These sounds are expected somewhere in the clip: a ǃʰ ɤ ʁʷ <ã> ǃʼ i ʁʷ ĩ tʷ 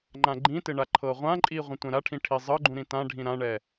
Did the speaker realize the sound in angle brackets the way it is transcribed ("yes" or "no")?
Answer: yes